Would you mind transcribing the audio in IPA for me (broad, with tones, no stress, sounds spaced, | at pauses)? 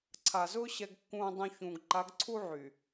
ǀʰ a˨ z ʊː˦ ɕ ɛ˨ ɡ kː ũː˨ dˤ ũ˨ ç ũː˨ ɡ ǃ a˨˦ ɡ ǀʰ u˦ ʕ y˨